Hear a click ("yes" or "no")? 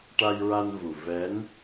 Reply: no